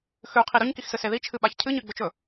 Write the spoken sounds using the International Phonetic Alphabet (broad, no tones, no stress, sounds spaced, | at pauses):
x ʉ qʰ i ɾ ɵ ɲ k i x s ɨ s e ð i t͡ʃʰ ɨ ɓ a ç cʰ ɨ ɲ ɨ ɡ͡b ɵ t͡ʃ ɵ